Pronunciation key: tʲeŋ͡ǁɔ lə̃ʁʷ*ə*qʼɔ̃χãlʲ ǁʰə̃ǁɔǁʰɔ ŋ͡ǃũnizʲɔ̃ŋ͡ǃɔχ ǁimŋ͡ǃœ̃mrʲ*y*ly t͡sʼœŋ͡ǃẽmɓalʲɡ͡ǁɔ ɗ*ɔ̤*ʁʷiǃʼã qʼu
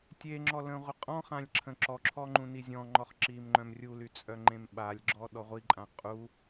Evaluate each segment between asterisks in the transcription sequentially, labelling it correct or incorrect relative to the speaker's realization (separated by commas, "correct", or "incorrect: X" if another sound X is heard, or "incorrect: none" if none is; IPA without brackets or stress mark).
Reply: correct, incorrect: u, incorrect: ɔ